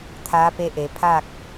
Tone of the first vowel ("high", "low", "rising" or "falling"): rising